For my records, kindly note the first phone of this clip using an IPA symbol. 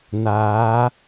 n̪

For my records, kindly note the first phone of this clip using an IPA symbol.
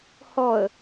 h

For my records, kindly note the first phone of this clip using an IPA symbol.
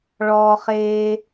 ɭ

